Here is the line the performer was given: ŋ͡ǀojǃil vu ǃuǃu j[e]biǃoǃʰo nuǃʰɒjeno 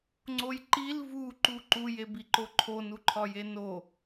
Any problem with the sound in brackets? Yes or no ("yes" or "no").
no